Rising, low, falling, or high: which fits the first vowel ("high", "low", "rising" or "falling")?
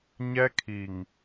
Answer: high